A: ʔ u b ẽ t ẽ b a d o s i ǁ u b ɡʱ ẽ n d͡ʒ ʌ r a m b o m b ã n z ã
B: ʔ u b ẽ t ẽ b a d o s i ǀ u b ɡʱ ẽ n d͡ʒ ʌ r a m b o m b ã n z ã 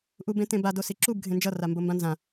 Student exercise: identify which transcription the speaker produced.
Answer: A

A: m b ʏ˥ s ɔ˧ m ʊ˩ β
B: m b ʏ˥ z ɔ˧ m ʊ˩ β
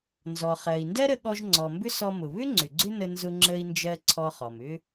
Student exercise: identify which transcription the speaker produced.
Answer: A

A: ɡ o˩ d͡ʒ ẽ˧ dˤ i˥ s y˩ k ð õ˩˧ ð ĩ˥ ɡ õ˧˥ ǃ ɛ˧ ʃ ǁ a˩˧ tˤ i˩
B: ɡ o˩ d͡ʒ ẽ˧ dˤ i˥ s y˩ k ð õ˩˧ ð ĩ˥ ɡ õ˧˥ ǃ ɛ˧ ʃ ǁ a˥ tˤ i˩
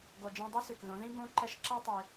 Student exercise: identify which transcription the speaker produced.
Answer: B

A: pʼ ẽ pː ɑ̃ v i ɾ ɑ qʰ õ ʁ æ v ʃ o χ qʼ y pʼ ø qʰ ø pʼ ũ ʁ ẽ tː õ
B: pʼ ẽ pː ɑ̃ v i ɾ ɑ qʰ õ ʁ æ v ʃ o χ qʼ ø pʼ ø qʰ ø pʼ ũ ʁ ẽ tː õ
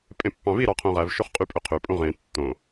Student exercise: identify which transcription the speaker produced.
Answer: A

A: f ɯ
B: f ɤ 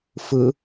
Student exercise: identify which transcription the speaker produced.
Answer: A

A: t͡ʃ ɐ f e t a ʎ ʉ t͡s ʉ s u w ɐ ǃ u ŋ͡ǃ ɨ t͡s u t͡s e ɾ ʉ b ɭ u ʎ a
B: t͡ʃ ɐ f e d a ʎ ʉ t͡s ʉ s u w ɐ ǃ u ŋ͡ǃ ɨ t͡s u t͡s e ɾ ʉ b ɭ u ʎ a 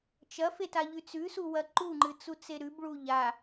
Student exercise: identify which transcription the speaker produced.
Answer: A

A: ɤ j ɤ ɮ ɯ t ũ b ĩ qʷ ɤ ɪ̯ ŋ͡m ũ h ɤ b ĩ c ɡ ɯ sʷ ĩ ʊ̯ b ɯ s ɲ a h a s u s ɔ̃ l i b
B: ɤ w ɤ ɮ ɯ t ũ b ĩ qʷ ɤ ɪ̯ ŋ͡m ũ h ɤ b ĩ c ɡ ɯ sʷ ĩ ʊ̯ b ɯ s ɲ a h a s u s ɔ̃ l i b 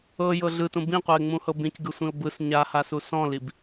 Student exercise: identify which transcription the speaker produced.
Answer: A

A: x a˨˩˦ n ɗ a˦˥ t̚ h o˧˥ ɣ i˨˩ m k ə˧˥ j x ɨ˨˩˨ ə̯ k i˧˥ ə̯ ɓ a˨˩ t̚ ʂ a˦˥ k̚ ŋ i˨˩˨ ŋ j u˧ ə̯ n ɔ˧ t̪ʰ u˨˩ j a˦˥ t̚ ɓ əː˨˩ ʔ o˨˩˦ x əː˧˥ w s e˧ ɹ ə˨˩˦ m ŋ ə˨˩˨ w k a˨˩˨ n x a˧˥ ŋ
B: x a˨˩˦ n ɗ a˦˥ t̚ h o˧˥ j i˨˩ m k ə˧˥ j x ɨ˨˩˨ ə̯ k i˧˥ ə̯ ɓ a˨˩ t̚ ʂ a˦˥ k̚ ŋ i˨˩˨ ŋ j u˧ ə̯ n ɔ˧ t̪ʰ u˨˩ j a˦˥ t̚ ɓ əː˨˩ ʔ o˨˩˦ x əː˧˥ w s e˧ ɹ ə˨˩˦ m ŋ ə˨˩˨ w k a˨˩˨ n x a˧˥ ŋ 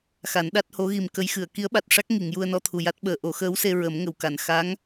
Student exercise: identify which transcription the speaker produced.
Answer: A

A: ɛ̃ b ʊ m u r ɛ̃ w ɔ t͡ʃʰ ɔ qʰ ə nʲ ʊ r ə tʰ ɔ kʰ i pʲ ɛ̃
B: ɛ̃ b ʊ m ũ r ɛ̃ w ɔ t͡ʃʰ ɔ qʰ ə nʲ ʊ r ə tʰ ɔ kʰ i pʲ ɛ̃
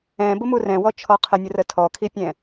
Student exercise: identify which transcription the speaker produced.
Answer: A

